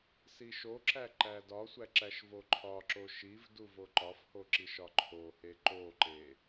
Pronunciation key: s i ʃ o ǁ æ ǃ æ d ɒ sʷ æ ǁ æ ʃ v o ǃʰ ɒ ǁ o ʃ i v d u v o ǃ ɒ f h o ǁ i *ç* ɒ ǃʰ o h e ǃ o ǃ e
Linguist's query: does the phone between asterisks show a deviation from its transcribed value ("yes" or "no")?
yes